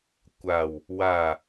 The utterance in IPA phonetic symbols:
kʷ a w | w a

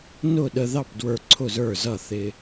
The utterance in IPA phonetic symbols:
n ʊ˥˩ ɗ ə˧ ð ɑ˥˩ p d w ə˞˧ ǀʰ ʊ˥˩ z ə˞˥˩ z ʌ˥˩ θ ɪ˧

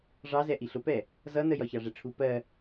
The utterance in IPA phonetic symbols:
ʐ ɑ z ɛ ʔ i ɬ ʊ p ɛ | z ʌ n ə j ɒ ç ɑ ʐ ɛ ʈ͡ʂʰ u p ɜ

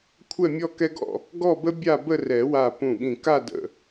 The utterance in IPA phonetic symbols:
kʷʰ ɛ˥˧ mʲ ɔ˥˧ k ɛ˥ ɡ ɔ̰˥˧ | ɡ ɔ˥˧ b ə˥ bʲ a˥˧ b ə˥˧ r ɛ˨˩˦ w a˧˩ p ũ˧˩ ɠ ĩ˧˩ k a˥˧ d ə̰˧˩

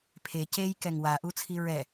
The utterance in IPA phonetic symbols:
pʰ e c e j k ɛ ŋ w a ʔ u t͡sʰ i ɹ ɛ

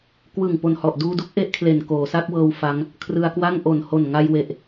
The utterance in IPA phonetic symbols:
k w ɯ˨˩ ŋ p o˨˩ n h ɔ˨˩ ʔ d uː˧ d u˥˩ k̚ ʔ e˥˩ ʔ kʰ l e˨˩ n k oː˩˦ s a˦˥ k̚ w ɤː˧ w f a˦˥ ŋ | kʰ r ɯ˧ a̯ k w a˥˩ ŋ ʔ o˨˩ n h o˨˩ n ŋ a˧ j w e˨˩ ʔ

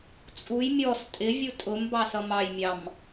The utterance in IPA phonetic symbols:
t͡sʼ u j mʲ ɔ s tʼ ɪ vʲ u tʼ ʊ m b ɑ s ʌ m ɑ j mʲ ɑ m

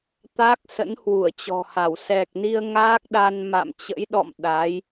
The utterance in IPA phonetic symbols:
t̪ a˦˥ k̚ s ə̰˧˥ n h w u˧˩ ə̯ t͡ɕ ɔ̤˨˩ h a˧˩ w s ɛ˨˩ k̚ n i˧ ə̯ ŋ aː˦˥ k̚ ɗ a˧ n m a̰˧˨ m t͡ɕ ə̰˧˥ j ɗ ɔ̰˧˨ m ɗ a˨˦ j

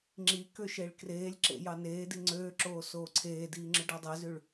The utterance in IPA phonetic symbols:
ŋ͡ǁ i k ø ʃ e ɭ k r eː lʲ ǁ ḛ j ɑ n eː d i ŋ͡ǀ øː ǁ oː s oː ǀʰ eː d iː ŋ͡ǁ ɯ ɖ æ dˤ e z y ɭ

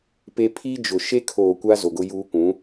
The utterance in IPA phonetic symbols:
p e˦ pʰ i˦ d͡ʒ ʊ˨ ʃ e˦ kʰ oː˨ kʷ a˦ z o˨ ɡ ʊ˦ j uː˦ kʷ ũ˨˦

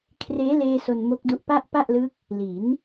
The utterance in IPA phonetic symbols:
kʰ r eː˦˥ l eː˧ s o˧ n m o˦˥ k̚ d u˦˥ ʔ p a˥˩ ʔ p a˥˩ ʔ l ɯ˦˥ k̚ | l i˩˦ n

